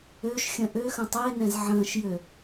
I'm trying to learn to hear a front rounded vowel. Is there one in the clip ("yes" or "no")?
yes